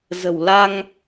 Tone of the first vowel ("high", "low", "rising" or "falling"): low